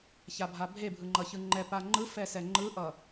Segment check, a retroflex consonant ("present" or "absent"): absent